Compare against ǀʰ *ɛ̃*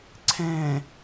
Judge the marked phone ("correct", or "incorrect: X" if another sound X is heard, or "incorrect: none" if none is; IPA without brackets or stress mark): correct